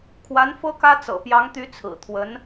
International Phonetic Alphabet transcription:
kʰwa˧˥nfɤ˥kä˥ t͡sɤ̰˨˩pjɑ˧˥ŋt̪y˧˥ t͡sʰɹ̩˨˩t̪ʰwə˧˥n

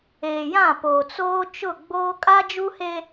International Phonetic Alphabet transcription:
eː˨jã˦˨poː˨ t͡soː˦ t͡ʃʊ˦˨ɡ͡boː˦ kʼa˦d͡ʒu˦he˦

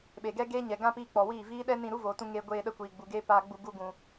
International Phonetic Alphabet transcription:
ɓe˨ɡɛ˦ɡeː˦ ɲɛ˨ɡã˦piː˧ k͡pɔ˨wiː˦˨viː˦ ɗɛ˦nĩ˧ ɾu˦voː˨tũ˧ ŋe˧ ɡʷeː˧ɗə˧ kʷiː˨ɡ͡bu˨ɡeː˦ paː˧ɡ͡bu˧ ɡu˧ɡũ˨

